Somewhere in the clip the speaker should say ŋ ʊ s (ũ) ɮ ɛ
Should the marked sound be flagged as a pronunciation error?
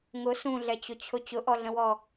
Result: no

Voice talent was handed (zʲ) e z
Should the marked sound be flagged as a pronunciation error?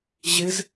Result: yes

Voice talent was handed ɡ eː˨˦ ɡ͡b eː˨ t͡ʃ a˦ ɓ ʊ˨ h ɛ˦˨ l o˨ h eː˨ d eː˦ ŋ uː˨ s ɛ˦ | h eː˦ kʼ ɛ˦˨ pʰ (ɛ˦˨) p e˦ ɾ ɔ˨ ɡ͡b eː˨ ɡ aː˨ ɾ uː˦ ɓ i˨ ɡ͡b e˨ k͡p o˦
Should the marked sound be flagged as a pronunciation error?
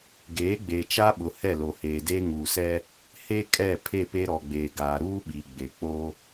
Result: yes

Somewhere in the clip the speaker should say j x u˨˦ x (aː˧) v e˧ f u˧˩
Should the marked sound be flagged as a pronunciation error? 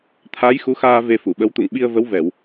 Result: no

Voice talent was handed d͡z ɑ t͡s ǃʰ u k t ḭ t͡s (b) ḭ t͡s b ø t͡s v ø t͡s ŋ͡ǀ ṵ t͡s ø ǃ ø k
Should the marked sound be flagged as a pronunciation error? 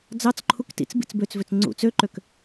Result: no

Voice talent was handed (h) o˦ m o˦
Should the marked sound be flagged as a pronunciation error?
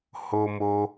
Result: no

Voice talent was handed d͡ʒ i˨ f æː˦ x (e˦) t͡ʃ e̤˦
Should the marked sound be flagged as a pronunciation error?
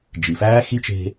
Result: yes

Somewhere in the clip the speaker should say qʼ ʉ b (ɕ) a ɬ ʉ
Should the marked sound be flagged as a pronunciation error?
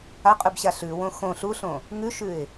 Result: no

